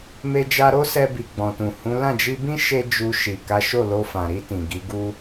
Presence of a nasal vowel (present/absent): present